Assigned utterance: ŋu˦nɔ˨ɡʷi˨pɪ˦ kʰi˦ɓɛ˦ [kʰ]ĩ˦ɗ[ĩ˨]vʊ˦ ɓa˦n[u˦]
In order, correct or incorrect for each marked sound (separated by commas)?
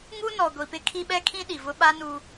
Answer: correct, incorrect, correct